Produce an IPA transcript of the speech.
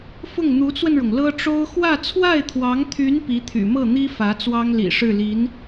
f ʊ˥˩ ŋ n̪ u˧˥ t͡s w ə˧ n ɻ ʊ˩ ŋ l ɤ˥ ʈ͡ʂ o˥ ʊ̯ x w ä˥˧ t͡sʰ w a˥˩ ɪ̯ t̪ʰ w ɑ˧˥ ŋ t̪ʰ y˧˥ n p i˧˥ t̪ʰ y̰˨˩ m ɤ˥˩ n̪ i˥ f ä˧˥ t͡s w ɑ˥ ŋ l ḭ˨˩ ʂ ɻ̩˥˩ l i˧˥ n

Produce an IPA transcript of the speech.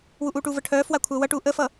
w u ʔ uː ʈ uː v ə ʈʰ œː f w a kʷʰ œː w ʌ ʈ uː ʔ ə f ʌ

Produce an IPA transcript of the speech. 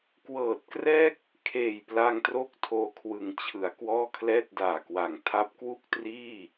k w ɤː˨˩ t̚ k r ɛː˥˩ k̚ | kʰ eː˨˩ j p l a˧ ŋ t r o˥˩ k̚ tʰ oː˧ kʰ w ɯ˩˦ ŋ t͡ɕʰ ɯ˩˦ a̯ k w ɔː˥˩ kʰ l ɛː˥˩ t̚ d aː˨˩ k w a˨˩ ŋ tʰ a˦˥ p̚ k w u˥˩ k̚ t r iː˥˩

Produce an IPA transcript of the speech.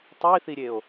tˤ i θ i ɾʲ e o̯

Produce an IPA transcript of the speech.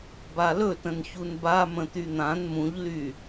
b a l ɵ t ə̃ n ç u n b a m ə̃ t̪ y n̪ ã n m ũ ʎ l y

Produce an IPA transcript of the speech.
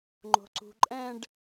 ŋ͡ǃ o̤ ǀ ṳ ǃʼ ɛ̃ ɖ

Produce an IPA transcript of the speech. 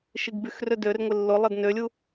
ʃ i ɡ b y x r ø d ø r ŋʷ ɪ lː ʊ lˠ ɐ d n ø lʲ u

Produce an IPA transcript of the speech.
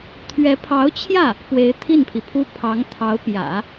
t̪ʰ ɥ ɛ˧˥ pʰ ɑ˧˥ ʊ̯ t͡ɕʰ j ä˥˩ | p w e˧˥ ɪ̯ t̪ʰ i˥˩ n pʰ i˩ pʰ u˥ pʰ ɑ˧˥ ŋ t̪ʰ ɑ˧˥ ʊ̯ p j ä̰˨˩˦

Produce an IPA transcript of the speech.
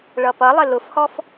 ɭ ʌ p ʌ lˠ ɪ l ʊ f h ɔ f

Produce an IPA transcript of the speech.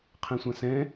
qʰ ẽ sʷ ã s ɛ̃

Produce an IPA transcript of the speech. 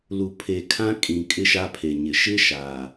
l u˨ pʰ e˨ kʰ ã˦ kʼ ĩ˨ kʼ ɪ˦ ʃ a˦ pʰ e˨ ɲ ɪ˨ ʃ ɪ˦ ʃ a˨

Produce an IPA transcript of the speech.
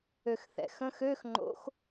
ø x θ ɛ̰ x ə̃ x ø x ŋ͡ǃ o̰ x

